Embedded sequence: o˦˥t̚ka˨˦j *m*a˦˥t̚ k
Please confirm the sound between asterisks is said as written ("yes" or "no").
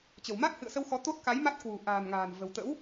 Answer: yes